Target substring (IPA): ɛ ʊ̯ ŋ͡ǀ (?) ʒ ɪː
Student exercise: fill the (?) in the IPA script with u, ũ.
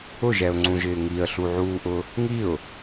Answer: ũ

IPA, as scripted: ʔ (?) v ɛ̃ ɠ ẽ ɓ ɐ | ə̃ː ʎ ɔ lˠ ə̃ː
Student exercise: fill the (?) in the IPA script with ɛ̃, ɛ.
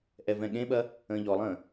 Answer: ɛ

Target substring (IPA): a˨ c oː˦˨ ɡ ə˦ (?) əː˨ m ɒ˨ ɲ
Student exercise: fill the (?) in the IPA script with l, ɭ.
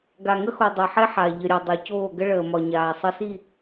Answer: ɭ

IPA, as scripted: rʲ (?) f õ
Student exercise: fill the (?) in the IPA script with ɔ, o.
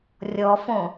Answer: ɔ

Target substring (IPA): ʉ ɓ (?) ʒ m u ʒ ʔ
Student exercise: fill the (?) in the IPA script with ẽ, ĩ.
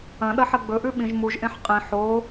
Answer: ĩ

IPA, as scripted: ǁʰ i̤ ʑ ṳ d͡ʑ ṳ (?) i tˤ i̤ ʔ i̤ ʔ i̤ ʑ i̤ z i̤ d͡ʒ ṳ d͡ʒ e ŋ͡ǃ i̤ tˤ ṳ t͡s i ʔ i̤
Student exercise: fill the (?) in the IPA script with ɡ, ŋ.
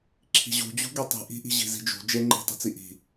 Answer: ɡ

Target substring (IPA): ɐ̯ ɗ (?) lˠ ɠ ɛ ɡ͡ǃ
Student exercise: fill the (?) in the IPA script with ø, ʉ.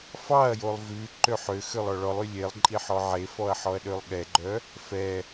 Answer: ø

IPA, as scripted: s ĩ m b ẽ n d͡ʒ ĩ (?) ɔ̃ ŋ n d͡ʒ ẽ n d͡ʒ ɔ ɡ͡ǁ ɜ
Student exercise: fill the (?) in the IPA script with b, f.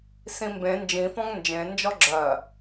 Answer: f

